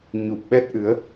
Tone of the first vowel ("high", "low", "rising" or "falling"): low